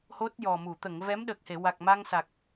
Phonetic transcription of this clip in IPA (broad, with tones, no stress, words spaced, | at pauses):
ho˦˥t̚jɔ˨˩mu˨˩˨ t̪ə˨˩˨ŋvɛ˧˥mɗə˨˩k̚he˨˩˨ wa˨˩k̚ma˧ŋsa˨˩k̚